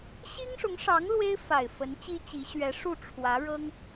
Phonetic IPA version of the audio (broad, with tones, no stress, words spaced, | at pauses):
ɕi˥ŋʂʊ˧˥ŋʂɑ˧˥ŋ lwe˥ɪ̯fa˨˩ɪ̯ fə˧˥nt͡ɕi˥t͡ɕi˧˥ ɕɥɛ˧˥ʂu˥˩ʈ͡ʂʰwä˧˥ ɻɤ˥ŋ